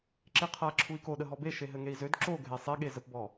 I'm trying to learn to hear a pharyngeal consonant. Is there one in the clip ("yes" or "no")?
no